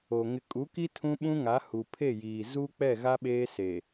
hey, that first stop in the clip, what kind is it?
ejective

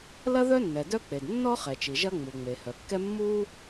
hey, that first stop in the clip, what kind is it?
plain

